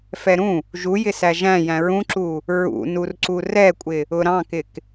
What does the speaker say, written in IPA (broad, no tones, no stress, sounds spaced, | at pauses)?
f ɛ ɾ ũ | ʒ u j ɪ s æ ʒ æ̃ j æ̃ ɹ ũ ǁ u | ɹ ṵ n u r ǀ u r ɛ kʷʼ ɪ | ʊ ɾ ɑ̃ k ɪ k